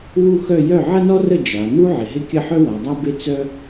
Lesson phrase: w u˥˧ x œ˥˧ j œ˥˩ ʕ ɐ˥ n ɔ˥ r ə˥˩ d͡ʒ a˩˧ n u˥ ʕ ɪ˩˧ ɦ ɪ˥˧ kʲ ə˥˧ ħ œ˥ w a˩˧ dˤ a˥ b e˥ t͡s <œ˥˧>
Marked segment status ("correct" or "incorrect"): incorrect